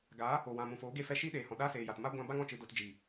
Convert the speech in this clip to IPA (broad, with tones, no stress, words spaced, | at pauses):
ɡaː˨˦ | o˨ wã˨mũ˨foː˨˦ ɡe˧fɛ˧ ʃiː˦ɗeː˨hɔ̃˨ ɗaː˦seː˨ja˨tma˦ ɡʷã˧ba˦ŋ ɔ̃˧t͡ʃɨ˧do˧t d͡ʒiː˨